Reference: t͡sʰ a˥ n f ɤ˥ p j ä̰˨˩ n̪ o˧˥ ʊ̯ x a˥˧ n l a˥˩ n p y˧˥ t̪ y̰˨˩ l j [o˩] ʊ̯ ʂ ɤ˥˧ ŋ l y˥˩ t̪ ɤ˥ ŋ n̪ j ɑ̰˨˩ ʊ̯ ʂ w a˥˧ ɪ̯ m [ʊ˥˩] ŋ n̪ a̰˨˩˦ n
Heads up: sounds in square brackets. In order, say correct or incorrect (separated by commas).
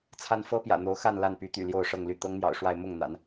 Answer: incorrect, correct